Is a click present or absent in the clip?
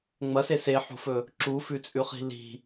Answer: present